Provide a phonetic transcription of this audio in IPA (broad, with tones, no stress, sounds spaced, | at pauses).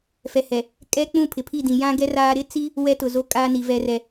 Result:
f ɛ˨ h ɛ˨ | kʼ ɛ˦ k͡p ũ˦˨ pʰ ɪ˨ pʰ i˦˨ d ĩ˨ j ã˦ ɡ ɛ˦ r aː˦ ɾ ɪ˦ t͡s i˦ | w ɛ˦ t ʊ˨ z o˦ kʼ aː˦ n i˨ v ɛ˦ r ɛ˦